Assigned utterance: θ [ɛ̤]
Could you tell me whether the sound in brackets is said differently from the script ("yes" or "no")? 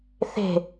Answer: yes